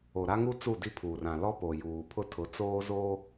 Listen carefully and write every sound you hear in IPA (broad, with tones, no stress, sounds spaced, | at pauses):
o˨ ɾ a˦ ŋ u˦ t͡s u˦˨ d i˦ pʰ uː˨ r ã˨ l ɔ˦ p o˨ j uː˨ pʰ ʊ˦ tʰ ʊ˨˦ t͡s oː˦ z oː˦